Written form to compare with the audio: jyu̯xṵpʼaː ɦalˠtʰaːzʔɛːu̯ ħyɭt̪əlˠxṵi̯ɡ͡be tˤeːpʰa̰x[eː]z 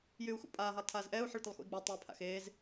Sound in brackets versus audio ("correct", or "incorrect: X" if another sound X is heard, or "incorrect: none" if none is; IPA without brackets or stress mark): correct